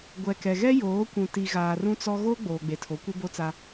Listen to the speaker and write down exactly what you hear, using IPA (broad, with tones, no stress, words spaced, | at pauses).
ɡʷɛ˨kɛ˨ɣɛ˦ joː˨˦kʷũ˨ti˨ ɣaː˨ rũ˦t͡sɔ˦ ɣoː˦ɡ͡boː˨ɡ͡be˨tʰo˨˦ kʷɪ˦ bo˦t͡sa˦